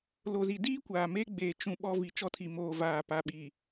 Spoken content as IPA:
l o˨ z i˨ d iː˦ kʷ aː˨ m eː˦ ɡ͡b eː˨ t͡ʃ ũ˨ ɓ ɔ˦ v i˨ t͡ʃ ɔ˦ tʰ i˨ m oː˨ v aː˨ p a˨ ɓ i˨

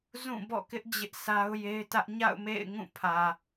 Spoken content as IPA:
z ũ˦˨ b ɔ̰˦˨ k ɪ˦ ʔ d͡ʑ ɪ˦ ʔ sʰ a˦ ʊ̯ j e˦ ɪ̯ t ä˦ ʔ ɲ a̰˦˨ ʊ̯ m ḛ˦˨ ɪ̯ ŋ ũ˦˨ pʰ ä˨

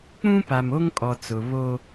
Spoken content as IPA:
k͡p ũ˦ p a˨ m o˦ ŋ kʼ ɔ˨ t͡s ʊ˨ β o˦

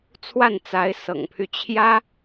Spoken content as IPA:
t͡sʰ w a˥˩ n t͡s a˧˥ ɪ̯ s ɤ̰˨˩ ŋ pʰ y˦ t͡ɕʰ j ä˥

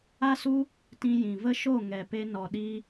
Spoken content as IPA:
a˦ s u˦ | t ĩ˧ j ĩ˨ v ə˦ ʃ o˦˨ ŋ ɛ˨ p e˧ n ɔ˨ ɗ i˧

